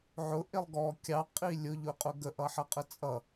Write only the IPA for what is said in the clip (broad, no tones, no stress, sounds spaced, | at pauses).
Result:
ʕ ʊ ʔ ɪ lˠ ɡ ɔ kʲ ɑ qʼ i lʲ ʊ ʎ ʊ qʼ ʊ ɡ ə ʔ ʌ ħ ʌ qʼ ə t͡sʼ ʌ